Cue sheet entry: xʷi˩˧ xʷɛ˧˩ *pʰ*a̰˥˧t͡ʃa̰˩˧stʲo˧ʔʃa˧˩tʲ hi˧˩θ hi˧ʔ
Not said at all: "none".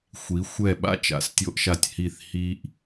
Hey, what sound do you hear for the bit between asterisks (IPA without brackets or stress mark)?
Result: ɓ